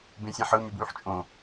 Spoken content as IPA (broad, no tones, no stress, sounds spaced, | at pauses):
b ẽ sʲ æ̃ ħ ɯ m y b w y ħ t͡ʃʼ õ